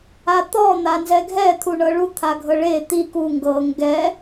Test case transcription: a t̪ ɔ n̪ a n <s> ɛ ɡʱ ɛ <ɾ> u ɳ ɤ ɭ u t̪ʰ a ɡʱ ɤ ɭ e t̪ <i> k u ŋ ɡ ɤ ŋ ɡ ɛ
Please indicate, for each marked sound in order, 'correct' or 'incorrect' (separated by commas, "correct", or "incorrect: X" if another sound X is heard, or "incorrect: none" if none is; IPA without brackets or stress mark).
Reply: incorrect: z, incorrect: t̪ʰ, correct